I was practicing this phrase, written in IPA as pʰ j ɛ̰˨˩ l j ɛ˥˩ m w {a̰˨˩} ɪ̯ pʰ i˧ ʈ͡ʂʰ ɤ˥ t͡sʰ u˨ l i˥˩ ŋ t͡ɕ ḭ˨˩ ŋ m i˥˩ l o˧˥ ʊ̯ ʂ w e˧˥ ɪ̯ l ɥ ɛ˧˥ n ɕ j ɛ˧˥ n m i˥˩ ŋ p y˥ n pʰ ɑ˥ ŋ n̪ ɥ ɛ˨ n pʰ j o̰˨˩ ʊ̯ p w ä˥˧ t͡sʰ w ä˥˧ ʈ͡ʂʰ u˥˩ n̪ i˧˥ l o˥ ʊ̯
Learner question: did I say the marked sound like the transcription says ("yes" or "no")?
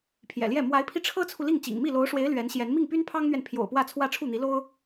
no